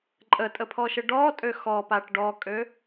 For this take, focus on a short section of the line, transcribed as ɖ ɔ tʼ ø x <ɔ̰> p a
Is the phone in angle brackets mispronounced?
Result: yes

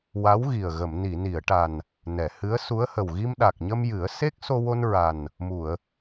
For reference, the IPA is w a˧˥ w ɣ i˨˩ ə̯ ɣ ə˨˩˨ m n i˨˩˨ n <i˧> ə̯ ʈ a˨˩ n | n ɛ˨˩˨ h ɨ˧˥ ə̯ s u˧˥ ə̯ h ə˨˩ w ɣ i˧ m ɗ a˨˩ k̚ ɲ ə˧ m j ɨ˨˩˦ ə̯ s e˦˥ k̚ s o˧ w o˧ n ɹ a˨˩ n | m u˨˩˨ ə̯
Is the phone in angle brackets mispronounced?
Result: yes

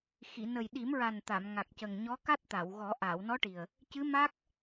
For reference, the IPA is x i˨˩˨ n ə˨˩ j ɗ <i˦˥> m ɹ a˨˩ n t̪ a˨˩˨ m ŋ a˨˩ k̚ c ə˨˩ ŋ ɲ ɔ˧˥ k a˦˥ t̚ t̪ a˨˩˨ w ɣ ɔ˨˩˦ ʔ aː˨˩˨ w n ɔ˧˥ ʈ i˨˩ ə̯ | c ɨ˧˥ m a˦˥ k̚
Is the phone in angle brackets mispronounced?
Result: yes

